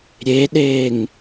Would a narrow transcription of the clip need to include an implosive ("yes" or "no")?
yes